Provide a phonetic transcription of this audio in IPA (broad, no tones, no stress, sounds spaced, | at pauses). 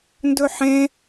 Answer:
n d ɵ ħ ẽ